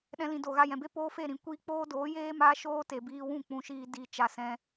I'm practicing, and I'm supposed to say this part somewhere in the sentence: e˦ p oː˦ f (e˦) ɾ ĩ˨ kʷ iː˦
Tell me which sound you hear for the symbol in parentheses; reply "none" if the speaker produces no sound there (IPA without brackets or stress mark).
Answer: e˦˨